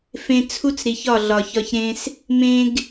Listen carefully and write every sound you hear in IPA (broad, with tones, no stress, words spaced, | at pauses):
fẽ˧t͡sʰu˦t͡sɾi˨ç ɒ˦˨ɮɒ˨çɒ˧çɾẽ˦s | mẽ˧ɡ